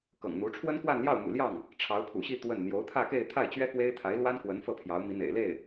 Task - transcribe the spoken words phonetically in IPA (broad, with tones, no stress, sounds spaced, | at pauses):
k ɤ̰˨˩ ŋ n̪ u˧˥ ʈ͡ʂʰ w ə˥ n k w a˥˧ n l j ɑ˥˩ ʊ̯ m ṵ˨˩ l j ɑ˥˩ ŋ | ʈ͡ʂʰ ɑ˧˥ ʊ̯ pʰ ṵ˨˩ ɕ i˥˧ t̪ w ə˥˩ n n̪ j o˧˥ ʊ̯ t̪ʰ ä˥˧ k e˥˧ ɪ̯ t̪ʰ a˥˩ ɪ̯ t͡ɕ ɥ ɛ˥ k w e˥ ɪ̯ t̪ʰ a˧˥ ɪ̯ l w a˥ n k w ə˧˥ n f ɤ˥˩ pʰ j ɑ˧˥ ʊ̯ m i˧˥ n̪ ḛ˨˩ ɪ̯ l e˥˩ ɪ̯